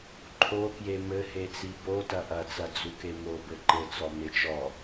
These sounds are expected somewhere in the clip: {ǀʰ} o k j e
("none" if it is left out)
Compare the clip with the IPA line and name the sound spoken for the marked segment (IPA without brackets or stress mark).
ǃʰ